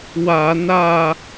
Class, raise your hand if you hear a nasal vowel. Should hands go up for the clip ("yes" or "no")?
no